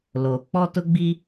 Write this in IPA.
loː˨ k͡pɔ˦tʊ˦ɡ͡bi˦

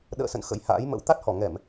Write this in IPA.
ɗə̰ː˧˨sə̰˧˨n xə̰˧˥jha̰ː˧˥jmə̰˧˥w t̪a˦˥t̚hɔ˧˩ ŋɛ˧˩˨m

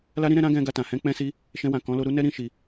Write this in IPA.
la˦ɾĩ˦ɾɛ̃˧ ɾã˦ɡɛ̃˧ ɡa˧tã˨ hɛ̃˧k͡pɛ̃˧si˧ | ʃɛ̃˧wã˨kɔ̃˨˦lo˧ ɾu˦nɛ˦ ɾĩ˦ʃi˧

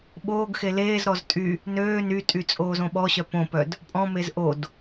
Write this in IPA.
ɓoːɡxe leːzɾɔz tʼy | nøː nytʼy t͡sʼoːzõɓɔɕœ põpœd | pʼɔ̃mez ʔod

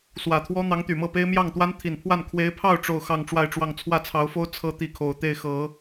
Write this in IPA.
swä˨˩t̪ʰwɔ˥ n̪ɑ˧˥ŋt̪y˨˩mɤ˥˩pe˥ɪ̯ mjɑ˥˩ŋt̪wa˥n t̪ʰi˨˩npʰwa˥˩n kʰwe˧˥ɪ̯pʰɑ˥˧ʊ̯ ʈ͡ʂo˥˧ʊ̯xɑ˥˧ŋ ʈ͡ʂwa˥˧ɪ̯ʈ͡ʂwɑ˥˧ŋ t͡sʰwä˥˩t͡sʰɑ˧˥ʊ̯fo˥ʊ̯ t͡sʰɤ˥t̪i˥˩kʰo˨˩ʊ̯ t̪e˥˩ɪ̯xɤ˨˩˦

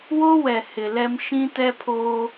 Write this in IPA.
wo˦wɛ˨ hɪ˨lɛ˦m ʃĩ˦tɛ˦pʰoː˦

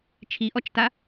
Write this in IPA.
t͡ʃʰiʔɔt͡ʃta

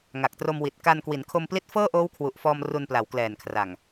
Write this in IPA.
ŋa˨˩k̚tro˧mwi˨˩t̚ ka˧nkwi˩˦n kʰo˧mpli˦˥t̚ fɤː˥˩ʔoː˦˥wkʰwu˨˩ʔfɔː˧m ru˧npla˩˦wklɛː˨˩nkʰra˨˩ŋ

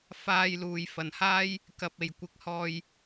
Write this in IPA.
faː˨jluː˨˩j fɐ˨˩nhaː˥j | kɐ˨p̚e˨˩j kʷɪ˨˥k̚hɔː˧j

